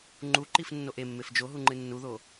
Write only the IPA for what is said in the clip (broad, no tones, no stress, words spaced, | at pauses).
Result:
ŋ͡ǃuǃifnːoʔ emːef d͡ʒoɦuŋ͡ǃɨ nːuðo